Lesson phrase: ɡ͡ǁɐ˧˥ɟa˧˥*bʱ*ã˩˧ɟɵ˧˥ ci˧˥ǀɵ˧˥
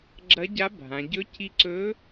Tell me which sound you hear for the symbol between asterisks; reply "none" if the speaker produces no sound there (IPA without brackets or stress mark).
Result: bʱ